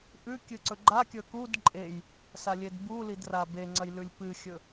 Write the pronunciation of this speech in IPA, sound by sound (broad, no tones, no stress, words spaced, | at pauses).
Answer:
ʔʉ kʲɨǀɵɡ͡ǃakʲɵ kud ǃʼej | salʲedbulid rabeŋ͡ǀɐj lʉlʲpɨxʲɵ